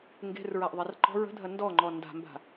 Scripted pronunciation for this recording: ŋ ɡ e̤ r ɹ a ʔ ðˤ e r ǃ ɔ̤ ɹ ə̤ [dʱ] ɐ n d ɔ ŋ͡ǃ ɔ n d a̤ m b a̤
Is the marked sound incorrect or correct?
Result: correct